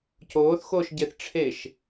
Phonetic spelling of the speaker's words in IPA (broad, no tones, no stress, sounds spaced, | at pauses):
c oː θ x oː ʃ ɟ e θ ʈ͡ʂʰ e ʃ